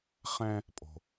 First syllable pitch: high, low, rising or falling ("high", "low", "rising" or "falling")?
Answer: high